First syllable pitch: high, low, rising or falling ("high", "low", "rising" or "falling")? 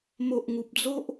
low